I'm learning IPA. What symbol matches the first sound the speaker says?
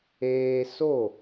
eː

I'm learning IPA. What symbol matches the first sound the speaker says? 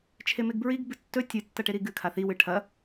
t͡ʃʰ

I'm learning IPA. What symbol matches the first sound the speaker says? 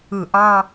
ɯ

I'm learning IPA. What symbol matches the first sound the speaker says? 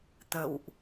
t̪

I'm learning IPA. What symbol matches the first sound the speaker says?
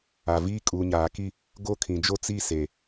a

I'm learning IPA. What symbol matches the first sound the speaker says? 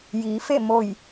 j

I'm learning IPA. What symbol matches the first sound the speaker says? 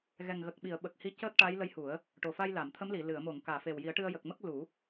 ɣ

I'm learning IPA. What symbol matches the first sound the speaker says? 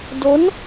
d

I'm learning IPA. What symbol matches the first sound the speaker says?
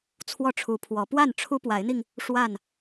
t͡sʰ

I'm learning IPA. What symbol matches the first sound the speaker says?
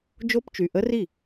d͡ʒ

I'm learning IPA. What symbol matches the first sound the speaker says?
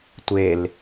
tʷ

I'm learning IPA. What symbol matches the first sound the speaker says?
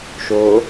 ʃ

